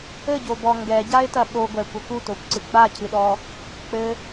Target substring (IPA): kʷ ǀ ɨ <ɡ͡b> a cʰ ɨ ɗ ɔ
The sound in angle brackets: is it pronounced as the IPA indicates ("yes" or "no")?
yes